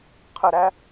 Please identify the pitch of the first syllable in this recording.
low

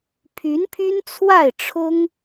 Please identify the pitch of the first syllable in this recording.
rising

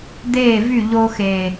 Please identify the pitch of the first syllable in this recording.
falling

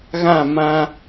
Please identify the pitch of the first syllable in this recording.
falling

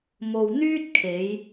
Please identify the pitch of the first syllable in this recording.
low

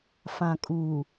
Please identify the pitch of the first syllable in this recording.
low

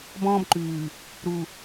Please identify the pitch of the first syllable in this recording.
high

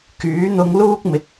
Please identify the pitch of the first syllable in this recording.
rising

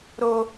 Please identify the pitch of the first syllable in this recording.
high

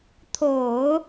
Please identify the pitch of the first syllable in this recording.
low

